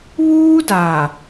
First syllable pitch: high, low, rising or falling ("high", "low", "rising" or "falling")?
high